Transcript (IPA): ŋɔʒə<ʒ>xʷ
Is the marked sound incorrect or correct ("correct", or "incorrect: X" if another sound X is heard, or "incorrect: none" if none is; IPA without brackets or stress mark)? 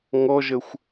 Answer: incorrect: none